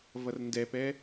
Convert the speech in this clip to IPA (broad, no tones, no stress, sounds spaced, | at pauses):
v ʌ r n d ɛ p ɛ